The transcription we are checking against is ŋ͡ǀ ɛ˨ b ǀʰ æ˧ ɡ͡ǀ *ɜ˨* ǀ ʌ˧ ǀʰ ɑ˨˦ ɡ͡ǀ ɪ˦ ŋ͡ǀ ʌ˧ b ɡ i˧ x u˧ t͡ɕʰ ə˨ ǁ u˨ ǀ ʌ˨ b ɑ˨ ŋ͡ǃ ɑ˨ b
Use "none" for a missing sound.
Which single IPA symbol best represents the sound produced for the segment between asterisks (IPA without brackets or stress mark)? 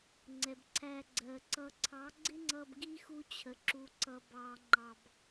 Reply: ɜ˨